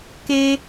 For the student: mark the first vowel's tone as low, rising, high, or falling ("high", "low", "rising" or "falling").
high